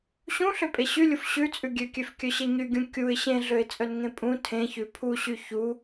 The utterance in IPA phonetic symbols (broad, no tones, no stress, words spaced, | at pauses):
ɕũɬøpʼe ɕylʲuf ɕʉt͡sʼʉ ɡʲøkʲøfkʲœɕe ɲyɡʲũ kʲuɪ̯ ɕẽɮøɪ̯t͡sʼœnŋẽ pʼũ tʰẽçʉ pʰuɕy çu